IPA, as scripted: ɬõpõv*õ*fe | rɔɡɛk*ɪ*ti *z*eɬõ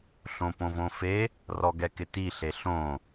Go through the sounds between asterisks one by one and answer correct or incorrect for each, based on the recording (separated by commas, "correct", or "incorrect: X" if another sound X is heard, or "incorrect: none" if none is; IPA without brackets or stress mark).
correct, correct, incorrect: ɬ